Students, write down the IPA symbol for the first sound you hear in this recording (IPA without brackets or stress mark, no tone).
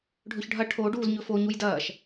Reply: ɖʱ